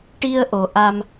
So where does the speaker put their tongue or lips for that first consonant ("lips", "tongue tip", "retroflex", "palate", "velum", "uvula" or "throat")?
retroflex